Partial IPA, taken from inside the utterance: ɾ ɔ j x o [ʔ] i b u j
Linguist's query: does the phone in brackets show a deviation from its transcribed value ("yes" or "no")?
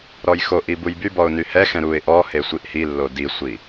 no